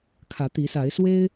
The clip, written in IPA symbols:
kʰä˨˦t̪i˨˦sa˨˦ɪ̯swe˦ɪ̯

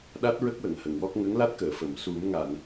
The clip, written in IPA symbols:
ɗa˦˥t̚ɹə˦˥k̚wə˨˩˨ŋ hə˨˩˨ŋwɔ˦˥k̚ ŋə˧˥ŋla˦˥t̚kəː˨˩˨fə˨˩˨m su˨˩˦mŋa˨˩˨n

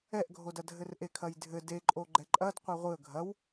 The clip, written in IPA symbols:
ɛʔɡʱodɐ dʱɘrʔekʰɐjdʱɘ deǃʼo ɡ͡ǃɛǃʼɐd qʷɛʁʷɨə̯ ɡʱɐw

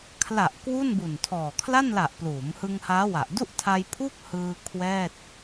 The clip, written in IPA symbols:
kʰla˨˩ʔ kwu˥˩nbu˨˩ntʰɔː˨˩ kʰla˥˩nla˨˩ʔ pluː˩˦mhɯ˧ŋ haː˦˥wa˨˩ʔ du˥˩ʔtʰa˧j pʰuː˥˩k̚ hɯː˧ kʰwɛː˥˩t̚

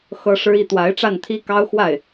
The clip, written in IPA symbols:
xɤ˥ʂɻ̩˥i˥˩ t̪wa˧˥ɪ̯ʈ͡ʂa˥˩nt̪ʰi˥ kɑ˥ʊ̯xwa˥˩ɪ̯

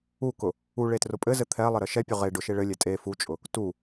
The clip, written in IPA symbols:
ukʊ | u ɭetrʊpʼɘzɘ t̪ʰɛlˠɘ ɾɘʃɛpʲʊ ʁe ɖʊʃe ɭɘlʲɛ tʼe fut͡ʃʼʊ | tu

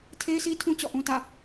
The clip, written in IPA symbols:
tʰe˦ɪ̯si˦tʰũ˦ t͡ɕɔ̰˦˨ʔũ˦ tä̰˦˨

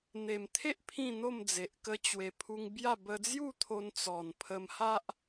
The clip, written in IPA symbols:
n̪e˨˩mt̪ʰe˦ʔ pʰĩ˥˧n̪o˥˧md͡ze˨ʔ kə˧ t͡ɕwe˨˩pʰu˧ŋ bja˥˧ bə˧d͡zju˥˧t̪ʰo˧n t͡sɔ˨˩npʰə˧mha˦ʔ

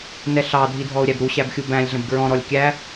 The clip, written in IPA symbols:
nɛɬɑ dʱidʱɔʊ̯ɾʲæbɾu ɕæbxʲubæ̃lʲ ɮə̃bɡɹɔ̃ ɾɔlʲkʲæ

